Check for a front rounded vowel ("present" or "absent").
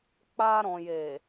absent